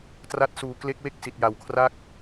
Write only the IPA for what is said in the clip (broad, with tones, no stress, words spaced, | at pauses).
tra˦˥t̚suː˨˩kle˦˥k̚we˥˩k̚ si˨˩t̚ja˨˩wkʰra˥˩k̚